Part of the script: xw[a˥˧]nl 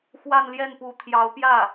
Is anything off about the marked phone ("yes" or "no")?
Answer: no